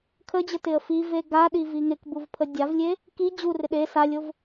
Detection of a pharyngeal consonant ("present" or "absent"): absent